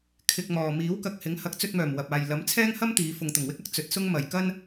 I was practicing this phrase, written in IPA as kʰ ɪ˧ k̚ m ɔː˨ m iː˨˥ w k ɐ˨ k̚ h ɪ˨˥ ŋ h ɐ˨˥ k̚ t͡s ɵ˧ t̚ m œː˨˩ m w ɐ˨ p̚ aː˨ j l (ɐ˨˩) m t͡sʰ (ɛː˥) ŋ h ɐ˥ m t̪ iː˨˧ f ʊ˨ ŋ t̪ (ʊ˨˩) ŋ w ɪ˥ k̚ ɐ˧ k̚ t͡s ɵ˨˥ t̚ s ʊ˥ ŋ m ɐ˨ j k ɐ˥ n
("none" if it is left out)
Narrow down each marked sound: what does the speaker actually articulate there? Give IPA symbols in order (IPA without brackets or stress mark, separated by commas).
ɐ˨˥, ɛː˥, ʊ˨˩